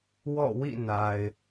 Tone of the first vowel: falling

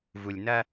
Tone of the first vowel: low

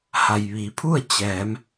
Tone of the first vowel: low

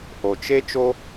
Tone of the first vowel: low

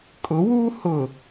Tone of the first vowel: rising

